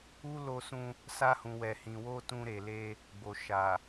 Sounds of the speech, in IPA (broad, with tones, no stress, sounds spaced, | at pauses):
u˦ l o˧ s ũ˧ | s a˧ h ũ˨ w ɛ˨ h ĩ˨ w o˧ t ũ˧ ɾ e˨ l e˧ | ɡ͡b o˨ ʃ a˨